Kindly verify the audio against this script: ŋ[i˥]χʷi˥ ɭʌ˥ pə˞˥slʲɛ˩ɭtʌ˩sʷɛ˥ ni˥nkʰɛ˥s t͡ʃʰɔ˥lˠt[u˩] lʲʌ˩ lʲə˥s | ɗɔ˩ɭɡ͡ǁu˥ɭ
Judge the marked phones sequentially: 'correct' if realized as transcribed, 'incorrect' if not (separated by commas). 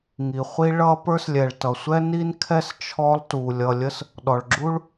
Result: incorrect, correct